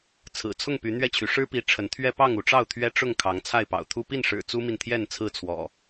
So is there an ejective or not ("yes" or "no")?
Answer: no